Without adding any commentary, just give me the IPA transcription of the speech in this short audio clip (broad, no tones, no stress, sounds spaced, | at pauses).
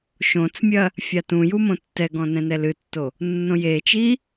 ʃ õ t͡s mʲ ɐ | fʲ a t ũ j u m õ tː ɛ ɡ ɔ̃ n ɛ̃ n ɛ l ɨ tː o | nː õ j e t͡ʃ i